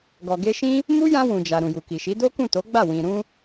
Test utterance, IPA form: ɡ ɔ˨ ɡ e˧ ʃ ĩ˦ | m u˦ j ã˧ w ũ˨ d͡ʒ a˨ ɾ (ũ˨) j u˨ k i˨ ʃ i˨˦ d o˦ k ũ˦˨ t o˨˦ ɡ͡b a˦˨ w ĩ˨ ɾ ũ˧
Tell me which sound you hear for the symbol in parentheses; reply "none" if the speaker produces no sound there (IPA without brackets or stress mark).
ũ˨